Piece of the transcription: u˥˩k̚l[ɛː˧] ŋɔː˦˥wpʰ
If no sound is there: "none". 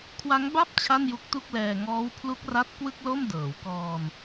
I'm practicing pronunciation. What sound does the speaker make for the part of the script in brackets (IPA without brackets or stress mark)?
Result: ɛː˧